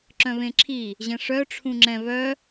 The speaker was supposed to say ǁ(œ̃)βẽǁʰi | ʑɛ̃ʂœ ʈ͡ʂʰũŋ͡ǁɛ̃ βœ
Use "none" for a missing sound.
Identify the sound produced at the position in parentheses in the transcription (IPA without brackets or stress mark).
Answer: œ̃